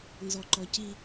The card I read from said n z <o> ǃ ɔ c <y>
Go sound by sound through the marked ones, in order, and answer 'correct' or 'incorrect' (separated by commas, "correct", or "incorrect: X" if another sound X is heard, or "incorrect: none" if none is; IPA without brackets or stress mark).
incorrect: ɔ, incorrect: i